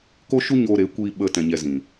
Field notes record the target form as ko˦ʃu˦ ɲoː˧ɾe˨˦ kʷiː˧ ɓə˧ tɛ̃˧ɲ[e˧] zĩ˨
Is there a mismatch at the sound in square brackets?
yes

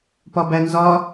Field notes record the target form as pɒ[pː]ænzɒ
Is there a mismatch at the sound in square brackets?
yes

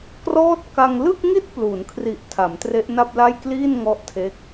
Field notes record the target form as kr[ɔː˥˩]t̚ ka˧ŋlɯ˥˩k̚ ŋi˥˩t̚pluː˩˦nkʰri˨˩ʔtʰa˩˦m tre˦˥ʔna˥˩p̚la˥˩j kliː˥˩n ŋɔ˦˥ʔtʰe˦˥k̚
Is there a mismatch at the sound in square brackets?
no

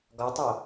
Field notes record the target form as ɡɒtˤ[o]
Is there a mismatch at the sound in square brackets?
no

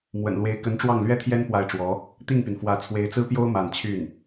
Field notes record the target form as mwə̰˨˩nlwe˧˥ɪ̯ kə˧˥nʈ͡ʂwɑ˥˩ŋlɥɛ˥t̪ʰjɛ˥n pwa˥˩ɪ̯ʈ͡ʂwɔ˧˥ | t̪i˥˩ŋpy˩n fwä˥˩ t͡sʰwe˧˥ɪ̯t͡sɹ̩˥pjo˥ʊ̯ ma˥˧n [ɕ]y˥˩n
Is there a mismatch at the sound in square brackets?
yes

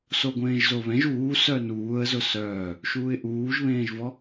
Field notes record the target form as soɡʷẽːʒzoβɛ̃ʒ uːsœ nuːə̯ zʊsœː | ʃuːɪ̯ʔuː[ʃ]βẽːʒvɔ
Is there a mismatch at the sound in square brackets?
yes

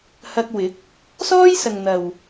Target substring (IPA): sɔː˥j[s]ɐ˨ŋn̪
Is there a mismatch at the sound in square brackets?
no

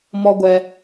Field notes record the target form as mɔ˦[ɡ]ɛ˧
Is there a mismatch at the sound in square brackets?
yes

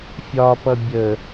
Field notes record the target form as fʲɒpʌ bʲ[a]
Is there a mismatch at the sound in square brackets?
yes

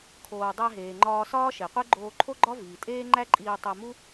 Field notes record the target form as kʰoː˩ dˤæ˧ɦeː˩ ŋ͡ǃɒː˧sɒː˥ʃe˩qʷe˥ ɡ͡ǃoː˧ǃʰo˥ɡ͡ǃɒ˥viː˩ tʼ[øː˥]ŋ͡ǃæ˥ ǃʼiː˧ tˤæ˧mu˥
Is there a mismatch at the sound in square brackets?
yes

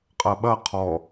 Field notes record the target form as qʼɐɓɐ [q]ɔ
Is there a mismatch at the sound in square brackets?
yes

